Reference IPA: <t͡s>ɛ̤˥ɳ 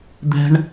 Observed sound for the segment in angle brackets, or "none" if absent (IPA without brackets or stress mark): d̪